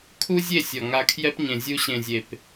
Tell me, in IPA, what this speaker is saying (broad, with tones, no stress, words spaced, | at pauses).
kʰu˦zʲe˦˨ sʲɔ˨ŋa˧kʰjɛ˦p ɲẽ˨zʲu˧ɕẽ˨zʲe˨p